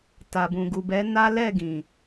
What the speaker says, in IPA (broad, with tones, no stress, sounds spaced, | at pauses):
t a˨ b ũ˨ ɡ u˨ b ɛ˨˦ n a˦ l ɛ˦˨ ɡ ĩ˨